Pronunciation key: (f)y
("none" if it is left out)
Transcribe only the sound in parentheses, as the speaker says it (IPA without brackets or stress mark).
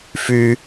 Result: f